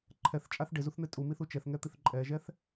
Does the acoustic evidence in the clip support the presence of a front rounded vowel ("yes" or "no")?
no